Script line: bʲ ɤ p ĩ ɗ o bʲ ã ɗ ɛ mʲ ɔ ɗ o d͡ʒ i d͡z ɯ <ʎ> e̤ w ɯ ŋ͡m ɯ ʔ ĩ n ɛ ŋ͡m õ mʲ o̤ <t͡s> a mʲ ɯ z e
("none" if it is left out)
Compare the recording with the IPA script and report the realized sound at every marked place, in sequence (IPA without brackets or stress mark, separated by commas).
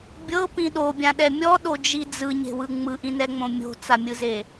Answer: ɲ, t͡s